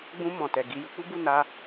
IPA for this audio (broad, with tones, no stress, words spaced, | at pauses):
ɡ͡bũ˧ mɔ̃˨ tɛ˨ ɡi˧ ju˧k͡pu˦bu˦˨ na˧